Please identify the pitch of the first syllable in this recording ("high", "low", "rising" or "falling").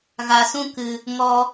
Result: low